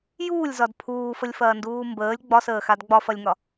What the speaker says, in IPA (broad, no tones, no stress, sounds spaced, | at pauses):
j uː lʲ z ɒ d pʰ uː f ə lʲ f ɐː n d uː m b əː lʲ ɡ͡b ɒ s əː x a d ɡ͡b ɒ f ɐ lʲ ŋ ɒ